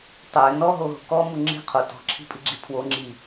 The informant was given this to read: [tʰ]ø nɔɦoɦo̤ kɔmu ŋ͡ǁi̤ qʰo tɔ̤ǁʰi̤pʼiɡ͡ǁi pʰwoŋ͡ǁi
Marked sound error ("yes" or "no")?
yes